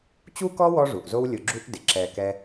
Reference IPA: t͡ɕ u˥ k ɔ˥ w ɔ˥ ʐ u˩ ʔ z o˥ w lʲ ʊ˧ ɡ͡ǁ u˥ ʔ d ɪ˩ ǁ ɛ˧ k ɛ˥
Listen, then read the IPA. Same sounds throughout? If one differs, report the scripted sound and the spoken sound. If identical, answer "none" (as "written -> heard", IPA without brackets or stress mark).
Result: none